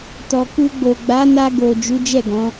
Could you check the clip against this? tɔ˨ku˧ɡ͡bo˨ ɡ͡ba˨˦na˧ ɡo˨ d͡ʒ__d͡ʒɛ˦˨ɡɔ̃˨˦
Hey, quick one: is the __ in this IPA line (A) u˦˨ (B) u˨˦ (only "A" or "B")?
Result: B